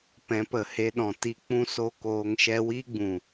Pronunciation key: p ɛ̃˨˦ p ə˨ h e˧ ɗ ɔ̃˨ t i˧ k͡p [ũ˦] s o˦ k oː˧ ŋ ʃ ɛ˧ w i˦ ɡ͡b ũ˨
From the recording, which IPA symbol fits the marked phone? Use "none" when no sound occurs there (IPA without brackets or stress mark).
ũ˦